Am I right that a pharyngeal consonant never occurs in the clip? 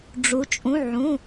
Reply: no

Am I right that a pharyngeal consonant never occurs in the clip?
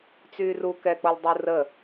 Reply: yes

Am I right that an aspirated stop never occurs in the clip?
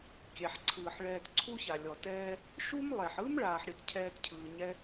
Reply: no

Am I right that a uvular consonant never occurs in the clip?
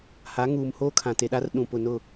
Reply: yes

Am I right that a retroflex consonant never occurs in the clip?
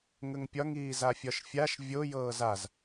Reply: yes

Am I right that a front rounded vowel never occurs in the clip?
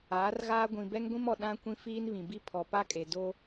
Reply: yes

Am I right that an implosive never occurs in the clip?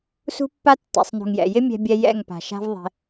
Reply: yes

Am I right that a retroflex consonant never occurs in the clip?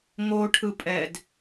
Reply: no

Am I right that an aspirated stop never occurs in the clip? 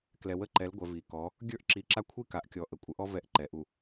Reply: no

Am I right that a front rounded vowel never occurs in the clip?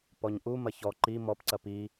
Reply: yes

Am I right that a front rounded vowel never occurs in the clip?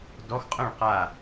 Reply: no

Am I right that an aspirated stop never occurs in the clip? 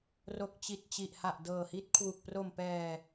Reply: no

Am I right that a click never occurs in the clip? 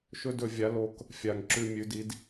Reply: no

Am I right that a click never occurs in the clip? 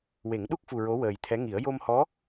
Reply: yes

